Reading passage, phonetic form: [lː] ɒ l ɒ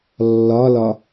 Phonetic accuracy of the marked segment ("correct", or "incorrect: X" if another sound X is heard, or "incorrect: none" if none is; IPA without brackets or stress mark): correct